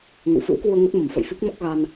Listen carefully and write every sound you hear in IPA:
ŋ ə̰˧˨ w f ɨ̰˧˥ w k w u˧ ə̯ ŋ ə˦˥ t̚ m ə˨˩ m f ə̰˧˨ j f i˦˥ k̚ m ɔ˦˥ k̚ ɣ a˧ n

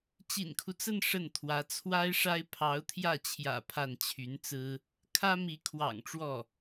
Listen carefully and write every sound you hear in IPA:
t͡ɕ ḭ˨˩ n kʰ u˦ t͡s ə˥˧ n ʂ ə˥˩ n t̪ʰ w ä˧˥ t͡sʰ w a˥ ɪ̯ ʂ a˥ ɪ̯ pʰ ɑ˧˥ ʊ̯ t̪ʰ j ä˥˩ t͡ɕʰ j ä̰˨˩ pʰ a˥˩ n t͡ɕʰ y˧˥ n t͡s ɹ̩˥ | kʰ ä˥ m i˧˥ kʰ w ɑ̰˨˩ ŋ ʈ͡ʂ w ɔ˥˩

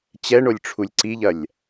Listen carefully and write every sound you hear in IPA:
t͡ɕ ɛ ɳ o lʲ ʈ͡ʂʰ u lʲ ǀ i ʎ ɐ lʲ

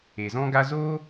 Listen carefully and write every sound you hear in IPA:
e˨ z ɔ̃˦ ɡ a˦ z oː˦

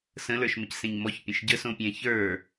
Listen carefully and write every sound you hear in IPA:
s ə̃ l ə˞ ʃ m ə c s ẽ ɲ m ɔ ç pʲ ə̃ ʃ ɟ ə s õ pʲ ɛ̃ ç ə˞

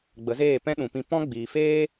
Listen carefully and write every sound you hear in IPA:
ɡ͡b ə˨˦ z eː˦˨ p ɛ̃˦ ɗ ũ˨ p ĩ˧ p ɔ̃˦ ɡ͡b iː˨ f eː˦

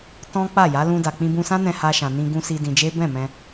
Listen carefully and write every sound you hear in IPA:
t ɔ̃˦ k͡p a˦˨ j a˨˦ l ũ˧ d a˨ k͡p ĩ˧ b ũ˧ s ã˦ n ɛ̃˧ h a˧ ʃ ã˨ n ĩ˧ ɡ ũ˧ s i˧ d ĩ˧ d͡ʒ e˦ b ɛ̃˦˨ m ɛ̃˧

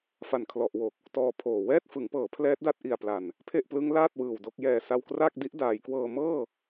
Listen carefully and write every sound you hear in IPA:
f a˨˩ n kʰ l ɔ˨˩ ʔ w o˨˩ k̚ | t ɔː˧ pʰ oː˨˩ w ɛː˥˩ t̚ f ɯ˩˦ ŋ p ɤː˩˦ pʰ l ɛː˦˥ t̚ d a˦˥ t̚ ʔ i˨˩ a̯ p l a˨˩ n | pʰ e˥˩ ʔ p l ɯ˦˥ ŋ l aː˥˩ t̚ w ɯː˨˩ w d o˥˩ k̚ j ɛː˧ s a˧ w k r aː˥˩ k̚ d i˦˥ ʔ d aː˩˦ j k w ɤː˧ m ɤː˥˩

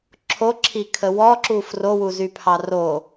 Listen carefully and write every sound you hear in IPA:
ǁʰ o ǁʰ i kʰ ə w ɔ ǁ u f r o w u z y pʰ ɑ r o

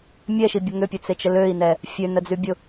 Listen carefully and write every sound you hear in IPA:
mʲ ɛ ʃ i bʲ ə ŋ ʏ pʲ e t͡s e t͡ʃ ə l ø i̯ n ɛ | fʲ ø n ə d͡z y bʲ ʊ

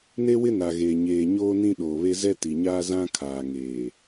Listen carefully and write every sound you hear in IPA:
n e˦ w ɪ˦ n a˨ ɣ eː˨ ɲ eː˨ ɲ oː˦ n ĩ˦ ɗ oː˨ β e˦ z ɛ˦ t i˨ ɲ aː˦ z ã˦ kʰ aː˨ ŋ eː˨

